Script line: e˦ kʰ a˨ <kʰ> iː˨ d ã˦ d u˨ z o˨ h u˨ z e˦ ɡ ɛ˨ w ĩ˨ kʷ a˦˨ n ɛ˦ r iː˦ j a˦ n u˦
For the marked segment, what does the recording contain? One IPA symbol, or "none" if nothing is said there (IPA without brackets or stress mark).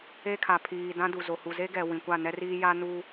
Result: pʰ